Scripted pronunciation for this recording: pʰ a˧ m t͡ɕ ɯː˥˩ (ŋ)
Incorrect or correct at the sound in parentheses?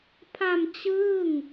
correct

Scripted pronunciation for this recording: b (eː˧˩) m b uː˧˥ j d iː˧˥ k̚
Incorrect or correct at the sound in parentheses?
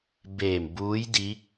correct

